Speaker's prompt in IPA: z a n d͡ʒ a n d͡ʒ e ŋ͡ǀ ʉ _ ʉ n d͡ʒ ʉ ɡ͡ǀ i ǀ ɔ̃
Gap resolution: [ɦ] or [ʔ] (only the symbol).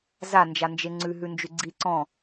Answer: ɦ